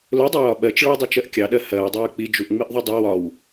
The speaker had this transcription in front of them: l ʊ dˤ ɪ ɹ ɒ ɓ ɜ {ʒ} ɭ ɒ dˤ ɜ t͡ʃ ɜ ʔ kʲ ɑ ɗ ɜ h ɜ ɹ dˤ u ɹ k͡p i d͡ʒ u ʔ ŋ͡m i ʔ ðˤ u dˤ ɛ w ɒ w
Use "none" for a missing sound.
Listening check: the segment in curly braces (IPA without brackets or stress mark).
t͡ʃ